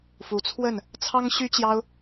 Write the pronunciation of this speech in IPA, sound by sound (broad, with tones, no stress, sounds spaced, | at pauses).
f u˨˦ t͡sʰ w ə˥˨ n | t͡sʰ ɑ˦ ŋ ɕ y˦ t͡ɕ j ɑ˦ ʊ̯